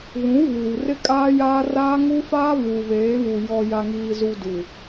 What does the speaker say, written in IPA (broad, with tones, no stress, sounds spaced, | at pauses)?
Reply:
ɣ ũ˨˦ v uː˨ r ɪ˦ kʼ aː˦ j aː˦ r aː˦ ŋ u˦ f aː˦ β u˨ β eː˨˦ β u˨ j ɔ˨ j a˨ ŋ iː˨ z u˨ d u˨